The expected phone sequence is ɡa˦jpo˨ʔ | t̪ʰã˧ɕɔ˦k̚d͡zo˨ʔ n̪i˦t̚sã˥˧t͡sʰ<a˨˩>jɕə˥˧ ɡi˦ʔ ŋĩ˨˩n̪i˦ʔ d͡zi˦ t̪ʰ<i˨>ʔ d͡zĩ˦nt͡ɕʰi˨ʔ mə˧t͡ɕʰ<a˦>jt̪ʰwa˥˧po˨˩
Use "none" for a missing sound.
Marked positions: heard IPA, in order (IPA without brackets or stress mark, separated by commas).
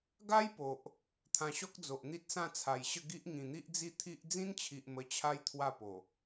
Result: a˨˩, i˦, a˦